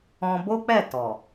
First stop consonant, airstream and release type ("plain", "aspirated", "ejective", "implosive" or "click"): plain